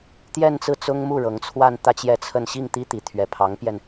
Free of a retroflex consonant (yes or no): no